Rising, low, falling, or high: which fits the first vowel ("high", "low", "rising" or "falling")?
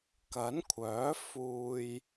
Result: rising